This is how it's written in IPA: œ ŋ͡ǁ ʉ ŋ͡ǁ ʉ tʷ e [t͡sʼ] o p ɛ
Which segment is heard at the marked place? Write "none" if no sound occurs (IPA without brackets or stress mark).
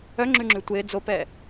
d͡z